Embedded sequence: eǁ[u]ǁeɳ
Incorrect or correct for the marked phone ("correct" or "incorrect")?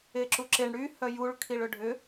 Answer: correct